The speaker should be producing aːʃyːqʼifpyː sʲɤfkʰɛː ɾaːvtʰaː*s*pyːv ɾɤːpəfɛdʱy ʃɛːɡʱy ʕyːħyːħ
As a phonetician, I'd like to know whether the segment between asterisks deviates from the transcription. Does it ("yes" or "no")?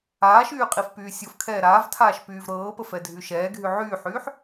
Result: yes